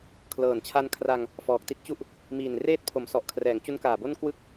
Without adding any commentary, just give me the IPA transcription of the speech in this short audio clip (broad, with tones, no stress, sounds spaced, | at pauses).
kʰ l ɤː˨˩ n t͡ɕʰ a˧ n kʰ r a˧ ŋ | f ɔː˨˩ k̚ t i˥˩ t̚ t͡ɕ u˥˩ ʔ | m iː˨˩ n r eː˦˥ t̚ pʰ o˩˦ m s ɔ˨˩ ʔ kʰ r ɛː˩˦ ŋ t͡ɕ u˦˥ n k aː˨˩ b o˥˩ n k w ɯ˥˩ k̚